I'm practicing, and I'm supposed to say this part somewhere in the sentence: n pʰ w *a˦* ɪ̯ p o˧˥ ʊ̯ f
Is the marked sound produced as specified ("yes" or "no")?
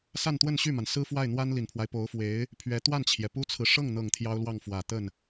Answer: yes